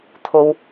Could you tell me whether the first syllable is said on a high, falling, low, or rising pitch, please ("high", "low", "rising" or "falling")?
low